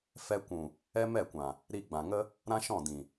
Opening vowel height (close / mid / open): mid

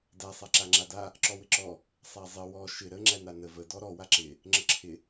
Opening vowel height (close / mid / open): open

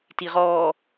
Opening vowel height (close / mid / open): close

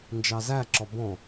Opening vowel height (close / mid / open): open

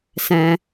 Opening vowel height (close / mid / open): mid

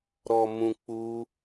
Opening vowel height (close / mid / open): mid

